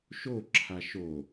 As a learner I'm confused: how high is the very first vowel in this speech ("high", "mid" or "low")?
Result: mid